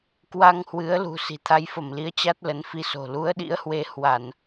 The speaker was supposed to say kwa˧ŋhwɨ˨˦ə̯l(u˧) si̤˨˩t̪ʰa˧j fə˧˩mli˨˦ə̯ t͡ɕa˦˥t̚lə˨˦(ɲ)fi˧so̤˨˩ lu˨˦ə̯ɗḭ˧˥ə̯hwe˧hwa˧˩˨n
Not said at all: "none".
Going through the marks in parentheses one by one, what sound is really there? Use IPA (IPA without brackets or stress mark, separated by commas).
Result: ṳ˨˩, n